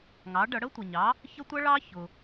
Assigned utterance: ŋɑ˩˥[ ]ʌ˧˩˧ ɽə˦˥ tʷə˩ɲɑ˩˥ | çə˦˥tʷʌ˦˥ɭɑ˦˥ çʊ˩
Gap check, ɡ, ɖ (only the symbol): ɖ